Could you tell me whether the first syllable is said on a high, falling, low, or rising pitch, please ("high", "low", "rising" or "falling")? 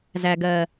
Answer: low